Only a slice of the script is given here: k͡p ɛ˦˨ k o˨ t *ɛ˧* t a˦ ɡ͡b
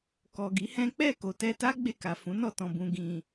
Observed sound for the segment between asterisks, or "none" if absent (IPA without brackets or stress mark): ɛ˧